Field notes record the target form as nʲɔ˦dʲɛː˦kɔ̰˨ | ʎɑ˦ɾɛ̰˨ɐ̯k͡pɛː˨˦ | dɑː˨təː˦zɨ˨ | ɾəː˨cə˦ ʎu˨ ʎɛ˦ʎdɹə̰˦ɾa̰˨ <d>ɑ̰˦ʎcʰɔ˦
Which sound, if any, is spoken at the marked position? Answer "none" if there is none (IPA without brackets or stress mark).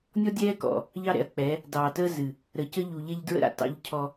t